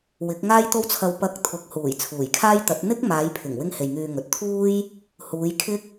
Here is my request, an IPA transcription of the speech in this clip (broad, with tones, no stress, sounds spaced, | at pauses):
w ɪ˨˥ k̚ ŋ aː˥ j t̪ o˥ w t͡sʰ ɐ˧ w p ɐ˧ k̚ t̪ʰ ʊ˨˥ k̚ h uː˨˩ j t͡sʰ uː˨˩ j kʰ aː˥ j t̪ ɐ˨˥ t̚ n̪ ɪ˥ k̚ m aː˨˧ j pʰ ɪ˨˩ ŋ w ɪ˥ ŋ h e˨ j ŋ yː˧ ŋ ɵ˨ t̚ t̪ʰ uː˥ j | h uː˨˧ j kʰ ɪ˥ k̚